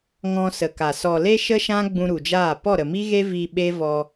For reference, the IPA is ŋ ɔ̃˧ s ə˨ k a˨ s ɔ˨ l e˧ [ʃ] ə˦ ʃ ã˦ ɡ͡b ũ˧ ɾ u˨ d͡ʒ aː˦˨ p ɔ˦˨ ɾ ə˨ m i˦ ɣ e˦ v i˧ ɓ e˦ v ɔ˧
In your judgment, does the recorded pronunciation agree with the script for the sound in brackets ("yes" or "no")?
yes